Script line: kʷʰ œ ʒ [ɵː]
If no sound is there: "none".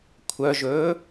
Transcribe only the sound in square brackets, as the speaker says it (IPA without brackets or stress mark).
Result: ɵː